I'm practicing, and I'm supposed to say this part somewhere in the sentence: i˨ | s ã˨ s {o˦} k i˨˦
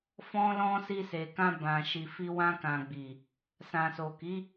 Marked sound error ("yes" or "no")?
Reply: yes